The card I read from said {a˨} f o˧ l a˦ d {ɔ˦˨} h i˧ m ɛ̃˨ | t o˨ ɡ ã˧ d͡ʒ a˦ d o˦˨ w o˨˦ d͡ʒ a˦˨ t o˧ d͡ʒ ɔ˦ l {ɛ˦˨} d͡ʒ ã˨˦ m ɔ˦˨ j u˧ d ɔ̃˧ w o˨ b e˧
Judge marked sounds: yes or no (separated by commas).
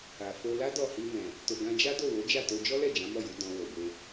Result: yes, yes, yes